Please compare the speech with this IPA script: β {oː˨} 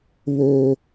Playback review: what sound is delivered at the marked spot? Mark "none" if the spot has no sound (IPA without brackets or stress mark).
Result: oː˦